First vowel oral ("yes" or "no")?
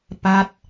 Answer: yes